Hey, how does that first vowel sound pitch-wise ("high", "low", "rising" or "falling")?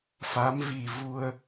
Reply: rising